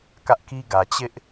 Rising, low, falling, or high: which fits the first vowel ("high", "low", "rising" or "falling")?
high